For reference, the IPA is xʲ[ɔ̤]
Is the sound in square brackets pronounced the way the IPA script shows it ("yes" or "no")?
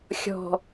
yes